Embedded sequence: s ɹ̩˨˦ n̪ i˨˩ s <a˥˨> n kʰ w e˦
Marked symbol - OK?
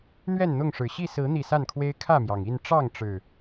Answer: yes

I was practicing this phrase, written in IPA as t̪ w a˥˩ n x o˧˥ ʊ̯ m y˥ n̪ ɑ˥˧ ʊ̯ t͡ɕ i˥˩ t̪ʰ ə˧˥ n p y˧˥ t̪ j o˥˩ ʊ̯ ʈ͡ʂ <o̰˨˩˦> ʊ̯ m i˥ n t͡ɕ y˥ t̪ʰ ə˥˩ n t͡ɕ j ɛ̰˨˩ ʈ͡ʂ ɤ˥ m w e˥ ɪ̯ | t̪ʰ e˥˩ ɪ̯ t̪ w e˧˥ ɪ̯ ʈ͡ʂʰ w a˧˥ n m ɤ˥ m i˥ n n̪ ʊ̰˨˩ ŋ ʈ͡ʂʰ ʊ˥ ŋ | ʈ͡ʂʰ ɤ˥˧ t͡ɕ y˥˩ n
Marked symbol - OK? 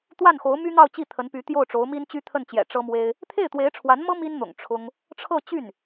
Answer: no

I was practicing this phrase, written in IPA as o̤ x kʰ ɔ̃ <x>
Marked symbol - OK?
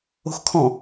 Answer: no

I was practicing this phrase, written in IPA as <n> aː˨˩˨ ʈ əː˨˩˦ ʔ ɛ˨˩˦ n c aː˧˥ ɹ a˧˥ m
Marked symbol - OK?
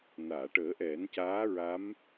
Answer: yes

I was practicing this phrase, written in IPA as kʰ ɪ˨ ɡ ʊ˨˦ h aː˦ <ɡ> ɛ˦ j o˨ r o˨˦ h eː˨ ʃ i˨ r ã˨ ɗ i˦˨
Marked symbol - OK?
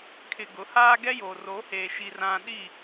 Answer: yes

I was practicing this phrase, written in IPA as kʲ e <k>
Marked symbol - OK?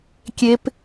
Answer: no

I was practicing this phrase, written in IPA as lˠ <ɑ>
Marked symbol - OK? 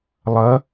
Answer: no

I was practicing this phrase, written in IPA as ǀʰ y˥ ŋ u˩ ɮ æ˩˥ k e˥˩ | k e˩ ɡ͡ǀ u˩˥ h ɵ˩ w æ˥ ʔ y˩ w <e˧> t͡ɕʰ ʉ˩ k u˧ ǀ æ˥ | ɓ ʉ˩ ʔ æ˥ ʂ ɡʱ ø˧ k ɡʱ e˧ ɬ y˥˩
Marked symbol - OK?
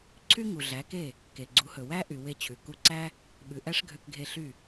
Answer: yes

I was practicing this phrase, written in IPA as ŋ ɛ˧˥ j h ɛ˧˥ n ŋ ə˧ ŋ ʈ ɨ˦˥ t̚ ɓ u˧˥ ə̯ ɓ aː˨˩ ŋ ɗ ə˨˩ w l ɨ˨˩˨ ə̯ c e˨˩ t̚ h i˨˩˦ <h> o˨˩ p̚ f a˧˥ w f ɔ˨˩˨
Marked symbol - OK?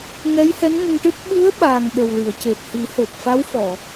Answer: yes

